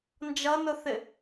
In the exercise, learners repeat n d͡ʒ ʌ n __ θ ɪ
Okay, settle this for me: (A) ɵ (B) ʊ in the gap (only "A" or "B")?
B